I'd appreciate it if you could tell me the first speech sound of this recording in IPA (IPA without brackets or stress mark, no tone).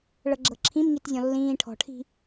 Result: ɭ